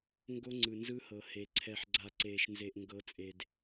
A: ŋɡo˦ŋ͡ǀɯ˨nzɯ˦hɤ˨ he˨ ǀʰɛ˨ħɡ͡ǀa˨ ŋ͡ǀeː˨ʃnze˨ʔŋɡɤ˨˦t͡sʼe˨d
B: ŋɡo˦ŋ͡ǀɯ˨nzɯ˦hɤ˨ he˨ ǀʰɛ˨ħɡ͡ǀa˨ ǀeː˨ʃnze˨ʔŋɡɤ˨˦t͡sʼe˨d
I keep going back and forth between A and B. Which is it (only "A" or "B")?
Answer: B